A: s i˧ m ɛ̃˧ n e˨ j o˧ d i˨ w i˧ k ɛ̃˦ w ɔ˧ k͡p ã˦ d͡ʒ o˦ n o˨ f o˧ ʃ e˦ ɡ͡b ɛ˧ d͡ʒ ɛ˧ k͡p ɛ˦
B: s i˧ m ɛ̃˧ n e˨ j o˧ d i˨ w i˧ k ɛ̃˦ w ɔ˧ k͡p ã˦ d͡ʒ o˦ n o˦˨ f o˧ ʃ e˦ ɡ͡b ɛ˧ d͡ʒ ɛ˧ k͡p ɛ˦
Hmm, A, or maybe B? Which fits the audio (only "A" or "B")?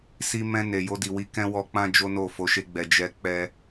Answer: B